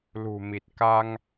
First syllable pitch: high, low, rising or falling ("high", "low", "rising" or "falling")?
low